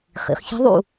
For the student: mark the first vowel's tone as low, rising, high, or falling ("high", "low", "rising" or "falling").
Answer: rising